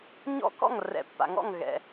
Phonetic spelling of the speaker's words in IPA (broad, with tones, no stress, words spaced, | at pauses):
ɲɔ̰˦ kɔ̰˥˩ŋrɛ̰˨pːa̰˨ŋɔ̰˥˩ŋ ɣɛ̰˨